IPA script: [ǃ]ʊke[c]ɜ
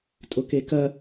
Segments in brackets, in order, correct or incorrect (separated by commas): incorrect, incorrect